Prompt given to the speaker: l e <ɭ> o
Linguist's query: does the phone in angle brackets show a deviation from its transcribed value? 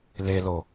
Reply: yes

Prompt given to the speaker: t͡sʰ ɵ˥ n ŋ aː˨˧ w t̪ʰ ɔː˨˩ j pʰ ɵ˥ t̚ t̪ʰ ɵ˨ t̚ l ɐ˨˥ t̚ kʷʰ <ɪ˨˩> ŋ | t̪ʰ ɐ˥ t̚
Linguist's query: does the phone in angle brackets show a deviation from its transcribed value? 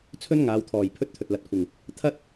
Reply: no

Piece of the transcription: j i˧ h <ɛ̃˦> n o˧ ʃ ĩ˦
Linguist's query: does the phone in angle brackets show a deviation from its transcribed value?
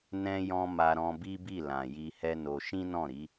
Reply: yes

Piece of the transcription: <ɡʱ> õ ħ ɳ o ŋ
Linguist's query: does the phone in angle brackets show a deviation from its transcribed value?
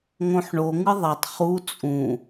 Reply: yes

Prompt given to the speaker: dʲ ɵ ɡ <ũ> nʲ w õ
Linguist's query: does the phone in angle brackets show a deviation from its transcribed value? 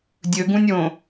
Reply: no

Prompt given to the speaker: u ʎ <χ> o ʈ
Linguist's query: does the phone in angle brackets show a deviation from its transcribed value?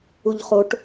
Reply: no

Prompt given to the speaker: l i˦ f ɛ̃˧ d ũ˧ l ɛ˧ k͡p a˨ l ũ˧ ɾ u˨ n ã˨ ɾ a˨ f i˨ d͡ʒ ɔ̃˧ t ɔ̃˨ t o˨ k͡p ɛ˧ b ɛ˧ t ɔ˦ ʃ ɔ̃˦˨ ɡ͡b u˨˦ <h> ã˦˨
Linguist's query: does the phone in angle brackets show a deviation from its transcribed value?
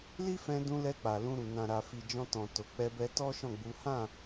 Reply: no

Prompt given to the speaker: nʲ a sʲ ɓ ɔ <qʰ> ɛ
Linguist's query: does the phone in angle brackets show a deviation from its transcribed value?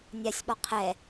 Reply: no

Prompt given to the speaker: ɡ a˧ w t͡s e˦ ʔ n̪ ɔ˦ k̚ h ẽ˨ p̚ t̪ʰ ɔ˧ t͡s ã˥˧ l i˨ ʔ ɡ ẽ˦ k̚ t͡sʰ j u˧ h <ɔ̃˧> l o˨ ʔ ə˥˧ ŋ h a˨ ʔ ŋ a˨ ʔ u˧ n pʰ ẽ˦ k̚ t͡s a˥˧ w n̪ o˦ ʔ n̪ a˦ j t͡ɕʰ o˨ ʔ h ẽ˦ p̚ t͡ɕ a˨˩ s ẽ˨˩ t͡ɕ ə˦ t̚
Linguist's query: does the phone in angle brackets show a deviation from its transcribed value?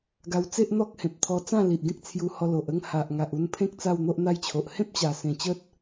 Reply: yes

